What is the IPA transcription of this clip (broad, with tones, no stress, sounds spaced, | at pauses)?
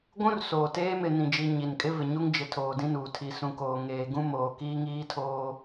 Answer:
ɡʷ ũ˦ r s oː˨ t eː˦ m ɪ˨ n ĩ˨ d͡ʒ i˨ ɲ i˨ n kʼ ɪ˦ v ɪ˨ ɲ u˦ ŋ d͡ʒ ɪ˨ tʰ oː˨ d ĩ˦ n uː˨ tʰ i˨ s ũ˨ k oː˨ ŋ eː˨ ɡ ũ˦ m oː˨ k iː˦ ŋ iː˦ tʰ oː˦